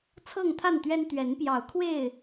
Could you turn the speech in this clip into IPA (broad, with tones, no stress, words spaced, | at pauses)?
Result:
t͡sʰɤ˥˨ŋt̪ʰa˥˨nt̪ɥɛ˦n t̪ɥɛ˨˦npjɑ˨˦ʊ̯kʰwe˥˨ɪ̯